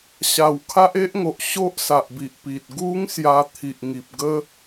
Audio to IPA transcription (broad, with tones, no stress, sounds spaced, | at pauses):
ɕ a˨˩ w kʰ a˦ ʔ e˦ ʔ ŋ o˨ ʔ ɕ o˦ ʔ s a˨ ʔ b i˨ ʔ p i˨ t̚ ɡ u˦ ŋ s j a˧ t̪ʰ i˨ ʔ ŋ i˨ p̚ ɡ ə˦